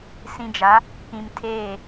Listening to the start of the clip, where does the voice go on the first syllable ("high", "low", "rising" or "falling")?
low